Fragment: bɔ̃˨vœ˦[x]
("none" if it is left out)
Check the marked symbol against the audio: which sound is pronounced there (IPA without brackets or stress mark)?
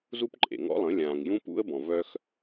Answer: x